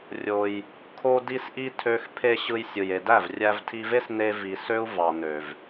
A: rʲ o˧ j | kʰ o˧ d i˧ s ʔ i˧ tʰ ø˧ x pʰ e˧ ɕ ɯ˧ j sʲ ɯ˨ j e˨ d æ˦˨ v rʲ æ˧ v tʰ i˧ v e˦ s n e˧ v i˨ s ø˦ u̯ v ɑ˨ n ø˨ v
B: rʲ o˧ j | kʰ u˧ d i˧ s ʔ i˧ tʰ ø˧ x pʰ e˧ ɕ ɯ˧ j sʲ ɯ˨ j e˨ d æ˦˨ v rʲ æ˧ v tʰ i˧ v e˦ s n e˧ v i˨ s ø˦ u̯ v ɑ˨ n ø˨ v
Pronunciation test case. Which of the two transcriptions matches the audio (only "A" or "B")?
A